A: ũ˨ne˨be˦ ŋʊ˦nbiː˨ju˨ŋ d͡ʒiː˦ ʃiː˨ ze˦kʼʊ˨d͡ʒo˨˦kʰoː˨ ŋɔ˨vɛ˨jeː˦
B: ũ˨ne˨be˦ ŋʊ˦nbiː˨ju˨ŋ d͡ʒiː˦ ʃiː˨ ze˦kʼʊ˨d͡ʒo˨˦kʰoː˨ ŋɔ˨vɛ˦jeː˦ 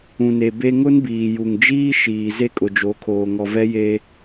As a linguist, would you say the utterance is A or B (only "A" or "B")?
B